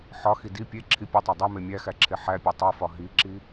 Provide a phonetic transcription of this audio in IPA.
ħ ɒ x i d i pʲ e ǁʰ i pʲ u tˤ æ dˤ e m e mʲ æ x æ ǁʰ e ħ æ pʲ e tˤ o f ɒ ɦ i ǁ i

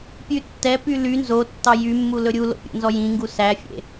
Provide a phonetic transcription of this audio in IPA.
pʲ ʉ tː ɛ p y l y n z o tː ɑ j y mː u l ɵ ɾʲ u l o̰ pʲ o̰ n z ɔ j ĩ ŋ ɡ u s æ fʲ ḛ

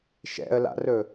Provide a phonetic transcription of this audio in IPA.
ʃ ɛ̰ ə̯ l a̰ r ɵ

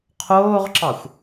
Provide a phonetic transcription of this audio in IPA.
qʰ oː ʁ ǁ ɑ xʷ

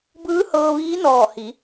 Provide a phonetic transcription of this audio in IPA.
b ɯː˧˥ h ɤː˧ ʋ iː˧˥ n ɔː˧˩ h i˩˧

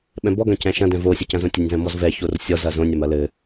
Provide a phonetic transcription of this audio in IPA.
ɓ ɛ̃ b ɔ ɡ ɐ̃ c ɛ̃ ʃ ɐ̃ d ɛ̃ v o sʲ ɐ c ɐ̃ z õ tʲ ɐ nʲ z ɐ̃ m ɔ z v ɛ ç o r sʲ ɔ z ɐ z õ nʲ ɐ m ɐ l ɘ

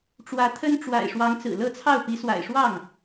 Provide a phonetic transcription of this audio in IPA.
ʈ͡ʂ w ä˧˥ t̪ʰ ə˥ n ʈ͡ʂ w a̰˨˩ ɪ̯ ʂ w ɑ˧˥ ŋ t͡s ɹ̩˨˩ l ɤ˥˧ t͡sʰ ɑ˥˩ ʊ̯ p i˧˥ s w a̰˨˩ ɪ̯ ʂ w ɑ˥˩ ŋ

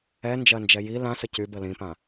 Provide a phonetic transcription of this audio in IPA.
ɛ n d͡ʒ ɜ n d͡ʒ ɛ j i l ã s ə c y b ə l ĩ p ã

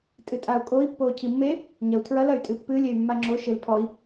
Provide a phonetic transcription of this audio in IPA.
tʼ ɨ tʼ a u̯ kʼ o i̯ pː oː cʰ i mː e | ɲ ɐ u̯ tʰ ɹ ɐ l ɐ y̯ tʼ ɨ pː ɨ lʲ e y̯ mː a ŋ͡ǁ o ʃ e l pʰ ɔ i̯

